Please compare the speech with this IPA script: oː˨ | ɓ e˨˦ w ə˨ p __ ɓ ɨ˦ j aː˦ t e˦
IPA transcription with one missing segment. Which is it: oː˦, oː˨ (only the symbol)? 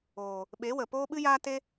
oː˦